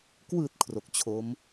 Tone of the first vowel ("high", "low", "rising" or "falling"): low